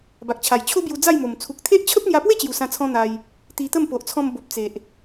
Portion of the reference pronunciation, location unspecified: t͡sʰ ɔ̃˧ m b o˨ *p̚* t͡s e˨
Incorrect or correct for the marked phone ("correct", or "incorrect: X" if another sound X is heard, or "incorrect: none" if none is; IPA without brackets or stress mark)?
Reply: correct